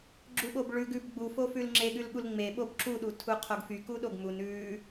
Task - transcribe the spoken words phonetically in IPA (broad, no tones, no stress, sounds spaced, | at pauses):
ɡ͡ǁ u ɓ o b ɭ ʉ ɡ ʉ b ɡ͡b u f o f ʉ l ŋ͡ǁ e ɠ ʉ l ɠ u l ŋ͡m e ɓ o b ǁ u ɗ u tʰ u qʰ o ɡ f y k u ɗ o ɡ m u n ʉ